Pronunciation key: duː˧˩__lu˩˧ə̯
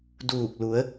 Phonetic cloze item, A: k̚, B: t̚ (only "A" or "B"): A